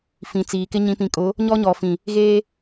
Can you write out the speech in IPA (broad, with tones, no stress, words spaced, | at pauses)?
fĩ˨t͡siː˨kɪ˦ ɲĩ˨pĩ˨kʼʊ˨˦ | ɲɔ˦ɲɔ˨fĩ˨ | ɣeː˦